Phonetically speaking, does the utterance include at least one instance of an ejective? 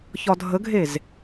no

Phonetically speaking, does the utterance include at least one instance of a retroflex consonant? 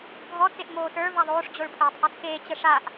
yes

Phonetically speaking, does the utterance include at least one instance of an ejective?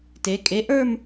yes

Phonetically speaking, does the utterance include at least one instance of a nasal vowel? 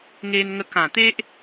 yes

